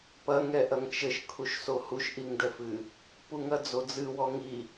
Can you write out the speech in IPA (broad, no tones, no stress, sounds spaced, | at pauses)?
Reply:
p ɐ ŋ ɛ ʔ ɐ ŋ t͡ʃ ɘ ʃ kʰ u ʃ s o h u ʃ ʔ i ŋ d ɛ f ɨ | p u ŋ ɐ d͡z o d͡z ɨ w ɔ ŋ i